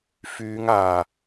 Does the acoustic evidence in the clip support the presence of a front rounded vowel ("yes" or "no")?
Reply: yes